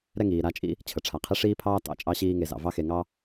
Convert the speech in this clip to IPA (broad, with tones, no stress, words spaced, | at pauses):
ɾɛ˦ŋiː˩ ɾa˦t͡ʃʼḭ˥ | t͡ɕʰə˩ʈ͡ʂʰa˩ qʰi˦ʂiː˥pʰɑː˥ tɑ̰˦t͡ʃʼɑ˦ɕiː˦ŋe˨ zɑ̰˩vɑ˦xe˨ŋɑ˦